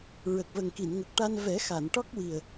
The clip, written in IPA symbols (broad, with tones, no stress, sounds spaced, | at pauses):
ɹ ə˨˩ k̚ v ə˨˩ ŋ k i˨˩˨ n ŋ ə˨˩ k̚ ʈ a˧ n v ɛ˨˩˦ x a˨˩˨ n ʈ ɔ˦˥ k̚ w i˨˩ ə̯